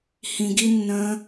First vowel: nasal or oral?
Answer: nasal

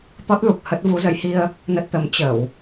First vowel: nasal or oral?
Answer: oral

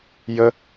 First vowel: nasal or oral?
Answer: oral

